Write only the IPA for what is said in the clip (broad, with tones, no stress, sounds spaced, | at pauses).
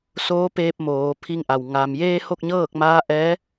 s oː˧˥ p eː˧ p̚ m oː˩˧ pʰ i˧ ŋ ʔ a˩ w ŋ a˩ m j eː˧ h o˥˨ k̚ ɲ ɤː˥˨ k̚ m aː˧˥ ʔ ɛː˧˥